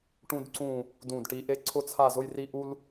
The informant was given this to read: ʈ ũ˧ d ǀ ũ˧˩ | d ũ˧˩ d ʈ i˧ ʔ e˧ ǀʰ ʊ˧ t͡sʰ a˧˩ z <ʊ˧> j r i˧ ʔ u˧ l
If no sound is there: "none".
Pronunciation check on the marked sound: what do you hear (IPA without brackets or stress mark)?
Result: ʊ˧